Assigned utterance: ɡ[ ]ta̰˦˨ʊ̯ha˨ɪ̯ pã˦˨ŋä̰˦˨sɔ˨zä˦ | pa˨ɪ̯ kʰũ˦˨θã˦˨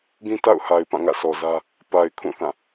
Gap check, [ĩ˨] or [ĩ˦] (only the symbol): ĩ˦